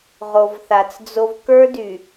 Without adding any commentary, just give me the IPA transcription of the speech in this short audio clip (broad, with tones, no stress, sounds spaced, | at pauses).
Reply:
ʁ o˨ v θ a˨ t͡s d͡z o˦ v k ə˞˦ d y˨